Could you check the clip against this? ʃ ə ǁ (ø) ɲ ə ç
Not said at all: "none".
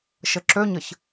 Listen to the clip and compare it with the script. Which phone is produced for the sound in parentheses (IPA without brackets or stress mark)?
ø